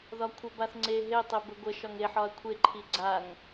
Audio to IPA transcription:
ðɒkʷʰəbaθ ŋ͡ǀe ɦetˤe bəɡʷəʃɒŋ eħɒɐ̯ kʷʰeǃʰi ɡ͡ǀaŋ

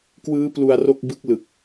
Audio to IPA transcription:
kwɯː˦˥ plu˧a̯ro˥˩k̚bɯ˦˥k̚ lɯ˨˩k̚

